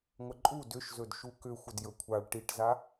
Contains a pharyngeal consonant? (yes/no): no